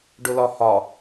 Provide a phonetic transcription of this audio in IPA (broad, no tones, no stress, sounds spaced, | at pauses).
ɖ ʊ l ɒ h ɒ